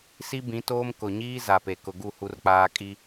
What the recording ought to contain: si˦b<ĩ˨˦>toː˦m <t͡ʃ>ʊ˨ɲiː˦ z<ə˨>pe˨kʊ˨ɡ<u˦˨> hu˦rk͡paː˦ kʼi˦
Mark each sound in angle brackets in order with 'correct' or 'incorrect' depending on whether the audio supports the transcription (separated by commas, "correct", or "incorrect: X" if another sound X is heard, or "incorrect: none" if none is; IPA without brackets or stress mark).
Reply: correct, incorrect: k, incorrect: a˨, correct